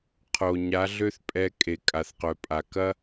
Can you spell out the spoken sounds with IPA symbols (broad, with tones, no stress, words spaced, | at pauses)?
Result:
qʰo˨ ɲa˨˦ɮø˦θ pʼɛ˧kʼe˨ kʼa˨θqœ˨pʼa˨ kɐ˦